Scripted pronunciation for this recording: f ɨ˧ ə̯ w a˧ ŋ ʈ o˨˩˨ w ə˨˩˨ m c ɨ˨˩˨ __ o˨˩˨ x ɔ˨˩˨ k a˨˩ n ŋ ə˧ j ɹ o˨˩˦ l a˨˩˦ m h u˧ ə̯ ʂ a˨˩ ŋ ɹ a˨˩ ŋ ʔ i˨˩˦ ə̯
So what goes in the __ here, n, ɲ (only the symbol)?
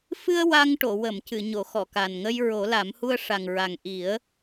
ɲ